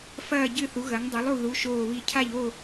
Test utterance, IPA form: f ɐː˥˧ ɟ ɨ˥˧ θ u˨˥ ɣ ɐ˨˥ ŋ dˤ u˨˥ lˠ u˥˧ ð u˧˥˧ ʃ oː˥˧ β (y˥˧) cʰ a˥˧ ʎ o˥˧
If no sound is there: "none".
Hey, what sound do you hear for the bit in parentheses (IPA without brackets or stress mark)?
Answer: i˥˧